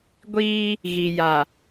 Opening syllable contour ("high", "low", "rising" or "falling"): high